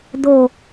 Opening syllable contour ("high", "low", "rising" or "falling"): low